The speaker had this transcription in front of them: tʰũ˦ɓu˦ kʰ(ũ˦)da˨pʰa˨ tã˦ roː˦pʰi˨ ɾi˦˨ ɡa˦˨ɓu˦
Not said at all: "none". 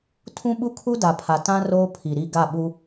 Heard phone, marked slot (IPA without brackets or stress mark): u˦